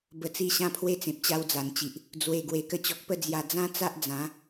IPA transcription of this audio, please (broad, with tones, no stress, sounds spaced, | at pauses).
b ə˨˩ t͡s i˧ ɕ ã˧ pʰ w e˧ t͡s ẽ˨ p̚ t͡ɕ a˧ w d͡z a˨˩ n t͡ɕ i˨ ʔ | d͡z w e˨˩ ɡ w e˨˩ k ə˧ t͡ɕ ɔ˨ k̚ p ə˥˧ d͡z j a˨˩ d͡z ã˦ t͡s a˦ ʔ d͡z ã˨˦